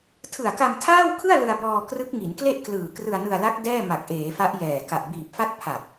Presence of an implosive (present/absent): absent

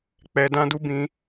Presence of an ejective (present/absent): absent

